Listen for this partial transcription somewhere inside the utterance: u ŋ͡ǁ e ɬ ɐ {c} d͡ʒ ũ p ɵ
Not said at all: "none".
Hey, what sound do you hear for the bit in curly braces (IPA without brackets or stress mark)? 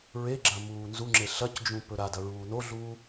c